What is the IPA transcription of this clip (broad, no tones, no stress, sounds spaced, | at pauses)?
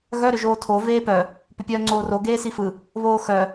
ɣ œ ɾ ʏ ʒ oː tʰ o v eː p œ | p ʏ pʲ œː ŋ͡ǀ oː r o ɡ eː s i f ɯ | β oː x œ